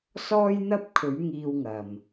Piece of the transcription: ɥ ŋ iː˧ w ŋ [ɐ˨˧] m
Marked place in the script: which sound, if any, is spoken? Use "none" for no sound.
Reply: ɐ˨˩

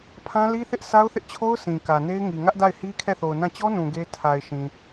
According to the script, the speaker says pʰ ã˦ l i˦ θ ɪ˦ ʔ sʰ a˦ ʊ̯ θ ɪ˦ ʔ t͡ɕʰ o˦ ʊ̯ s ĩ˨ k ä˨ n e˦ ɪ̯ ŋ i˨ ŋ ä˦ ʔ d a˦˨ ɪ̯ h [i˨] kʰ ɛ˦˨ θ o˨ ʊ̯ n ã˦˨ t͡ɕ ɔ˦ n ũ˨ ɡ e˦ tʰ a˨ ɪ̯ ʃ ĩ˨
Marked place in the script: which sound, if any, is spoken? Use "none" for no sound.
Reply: i˦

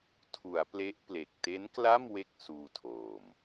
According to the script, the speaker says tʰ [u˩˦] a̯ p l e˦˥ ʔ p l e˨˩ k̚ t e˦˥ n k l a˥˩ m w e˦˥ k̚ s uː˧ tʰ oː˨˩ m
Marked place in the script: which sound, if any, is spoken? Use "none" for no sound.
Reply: u˩˦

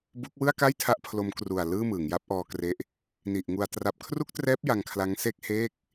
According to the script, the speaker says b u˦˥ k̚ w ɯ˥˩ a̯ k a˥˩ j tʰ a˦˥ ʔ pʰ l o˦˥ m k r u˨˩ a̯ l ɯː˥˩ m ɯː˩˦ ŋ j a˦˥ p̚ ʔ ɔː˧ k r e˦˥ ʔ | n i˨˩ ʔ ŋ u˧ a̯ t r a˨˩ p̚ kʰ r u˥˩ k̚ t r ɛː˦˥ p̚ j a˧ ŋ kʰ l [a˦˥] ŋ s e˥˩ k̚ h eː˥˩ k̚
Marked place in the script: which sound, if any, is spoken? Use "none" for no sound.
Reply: a˦˥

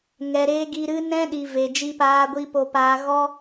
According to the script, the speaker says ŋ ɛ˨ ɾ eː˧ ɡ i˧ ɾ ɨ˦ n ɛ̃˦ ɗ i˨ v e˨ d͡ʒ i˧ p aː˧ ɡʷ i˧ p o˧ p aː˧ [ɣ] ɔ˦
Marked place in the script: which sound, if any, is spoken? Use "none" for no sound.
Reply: ɣ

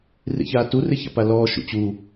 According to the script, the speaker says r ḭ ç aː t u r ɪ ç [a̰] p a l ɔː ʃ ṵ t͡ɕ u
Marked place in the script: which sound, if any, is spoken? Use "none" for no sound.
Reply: a̰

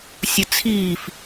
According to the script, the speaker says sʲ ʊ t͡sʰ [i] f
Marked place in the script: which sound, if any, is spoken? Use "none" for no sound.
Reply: iː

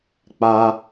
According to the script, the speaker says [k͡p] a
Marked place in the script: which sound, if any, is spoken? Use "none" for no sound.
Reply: k͡p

